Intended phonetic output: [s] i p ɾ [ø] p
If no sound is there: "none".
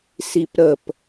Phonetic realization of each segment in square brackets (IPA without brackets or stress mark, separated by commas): s, ə